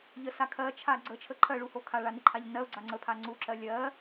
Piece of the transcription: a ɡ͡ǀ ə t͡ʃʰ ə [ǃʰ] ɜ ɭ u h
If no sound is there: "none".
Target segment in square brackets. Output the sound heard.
ǃʰ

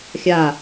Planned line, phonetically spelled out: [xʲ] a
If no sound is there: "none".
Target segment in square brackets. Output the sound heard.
xʲ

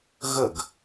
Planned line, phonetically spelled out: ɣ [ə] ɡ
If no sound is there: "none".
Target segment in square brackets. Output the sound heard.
ə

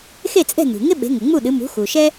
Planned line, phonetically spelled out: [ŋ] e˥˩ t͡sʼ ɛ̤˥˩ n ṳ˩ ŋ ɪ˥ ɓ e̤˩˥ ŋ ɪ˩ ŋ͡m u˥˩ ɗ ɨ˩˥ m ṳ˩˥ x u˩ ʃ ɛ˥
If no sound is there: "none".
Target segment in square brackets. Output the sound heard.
x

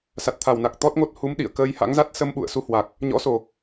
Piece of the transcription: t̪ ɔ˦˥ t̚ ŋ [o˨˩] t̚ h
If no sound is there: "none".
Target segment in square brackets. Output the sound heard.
o˦˥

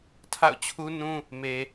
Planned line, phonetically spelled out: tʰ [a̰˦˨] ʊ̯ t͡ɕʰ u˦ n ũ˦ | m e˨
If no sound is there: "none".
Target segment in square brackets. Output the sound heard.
a̰˦˨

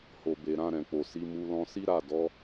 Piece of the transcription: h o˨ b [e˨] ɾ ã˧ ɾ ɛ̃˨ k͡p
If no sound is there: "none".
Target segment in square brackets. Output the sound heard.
e˨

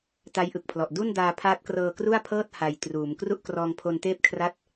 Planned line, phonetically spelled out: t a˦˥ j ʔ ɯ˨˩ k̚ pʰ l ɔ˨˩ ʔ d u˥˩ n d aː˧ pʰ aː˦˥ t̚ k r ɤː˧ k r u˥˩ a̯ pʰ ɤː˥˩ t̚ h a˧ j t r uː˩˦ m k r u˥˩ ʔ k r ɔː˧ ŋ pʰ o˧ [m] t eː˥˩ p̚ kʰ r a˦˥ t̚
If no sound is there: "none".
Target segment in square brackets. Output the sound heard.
n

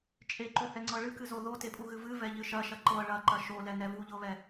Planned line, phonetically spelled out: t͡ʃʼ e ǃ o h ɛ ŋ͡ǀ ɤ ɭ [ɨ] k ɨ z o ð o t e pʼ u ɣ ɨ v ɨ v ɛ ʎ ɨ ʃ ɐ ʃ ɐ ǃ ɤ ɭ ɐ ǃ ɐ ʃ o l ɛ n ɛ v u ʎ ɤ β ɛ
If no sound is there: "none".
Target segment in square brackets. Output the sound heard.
ɨ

